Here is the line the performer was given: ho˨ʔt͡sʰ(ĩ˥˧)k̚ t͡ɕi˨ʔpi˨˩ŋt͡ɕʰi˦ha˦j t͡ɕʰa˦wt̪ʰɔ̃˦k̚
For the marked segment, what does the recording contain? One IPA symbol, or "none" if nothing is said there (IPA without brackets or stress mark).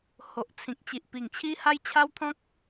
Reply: ĩ˨